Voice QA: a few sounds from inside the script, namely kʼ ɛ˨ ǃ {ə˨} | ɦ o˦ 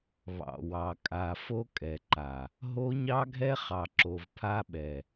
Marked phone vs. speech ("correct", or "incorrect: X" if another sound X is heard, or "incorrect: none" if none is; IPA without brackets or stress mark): incorrect: a˨